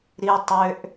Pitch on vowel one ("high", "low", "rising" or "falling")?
high